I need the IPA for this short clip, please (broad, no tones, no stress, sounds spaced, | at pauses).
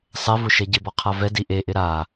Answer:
sˤ ɛ v ʊ ʃ ɛ ɟ ɪ b ɔ qʰ a v ɛ d i ʔ e ʔ ɪ ɾ a